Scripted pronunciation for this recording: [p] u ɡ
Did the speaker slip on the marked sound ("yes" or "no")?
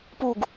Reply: no